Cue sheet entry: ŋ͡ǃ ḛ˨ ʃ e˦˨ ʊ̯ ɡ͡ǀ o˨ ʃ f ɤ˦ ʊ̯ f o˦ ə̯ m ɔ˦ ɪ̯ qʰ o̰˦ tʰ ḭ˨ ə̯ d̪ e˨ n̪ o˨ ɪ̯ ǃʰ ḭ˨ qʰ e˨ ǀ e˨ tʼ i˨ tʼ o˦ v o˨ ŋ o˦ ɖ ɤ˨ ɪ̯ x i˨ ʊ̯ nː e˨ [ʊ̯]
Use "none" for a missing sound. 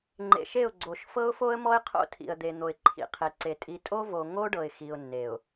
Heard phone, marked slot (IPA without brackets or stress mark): ʊ̯